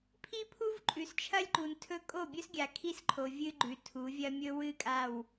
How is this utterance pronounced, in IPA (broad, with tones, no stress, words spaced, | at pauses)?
pʰi˦pʰu˦vǃʼʉ˨s t͡ʃʰɐ˦lʲǃu˨ntʰɵ˦ kʼo˦˨bʲɵ˦sɡʲa˨ kʰi˦sǃʰo˨ vʲɨ˦ɡ͡ǃʉ˨tʰu˨˦vʲɐ˦ mʲɵ˦wɨ˦˨kʼa˦˨w